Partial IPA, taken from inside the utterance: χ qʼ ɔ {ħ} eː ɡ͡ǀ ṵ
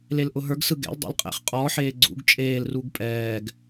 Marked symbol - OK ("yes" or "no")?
yes